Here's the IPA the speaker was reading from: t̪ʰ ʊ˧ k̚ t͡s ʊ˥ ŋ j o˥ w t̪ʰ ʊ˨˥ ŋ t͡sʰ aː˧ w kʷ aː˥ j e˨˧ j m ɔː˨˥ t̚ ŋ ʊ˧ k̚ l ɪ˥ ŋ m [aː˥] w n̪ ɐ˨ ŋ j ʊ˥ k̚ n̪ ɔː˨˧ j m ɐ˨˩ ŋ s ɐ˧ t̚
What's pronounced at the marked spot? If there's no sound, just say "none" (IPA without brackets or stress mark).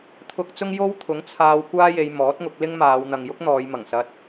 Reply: aː˨˧